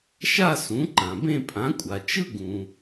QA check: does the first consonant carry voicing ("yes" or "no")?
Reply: no